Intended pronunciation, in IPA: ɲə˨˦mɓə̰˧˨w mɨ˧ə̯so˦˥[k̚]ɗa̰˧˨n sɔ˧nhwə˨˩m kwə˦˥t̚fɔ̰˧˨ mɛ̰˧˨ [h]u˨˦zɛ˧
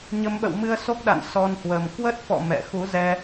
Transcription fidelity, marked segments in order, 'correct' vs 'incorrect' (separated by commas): correct, incorrect